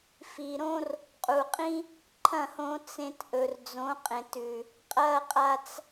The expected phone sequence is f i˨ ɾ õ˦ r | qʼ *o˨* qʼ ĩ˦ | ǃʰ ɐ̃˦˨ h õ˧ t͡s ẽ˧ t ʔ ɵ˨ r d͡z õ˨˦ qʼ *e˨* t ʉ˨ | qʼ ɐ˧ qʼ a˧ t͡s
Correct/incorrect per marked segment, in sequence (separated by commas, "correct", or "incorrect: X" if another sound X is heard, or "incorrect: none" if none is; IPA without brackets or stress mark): incorrect: u˨, incorrect: ẽ˨